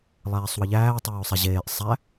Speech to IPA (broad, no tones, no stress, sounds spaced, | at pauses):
lˠ æː sˤ w ə ʎ æː tˤ oː sˤ e ʑ eː ʔ sˤ æ